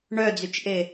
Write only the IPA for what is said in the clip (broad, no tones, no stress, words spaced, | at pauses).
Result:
ɳœd͡zyt͡ʃʔe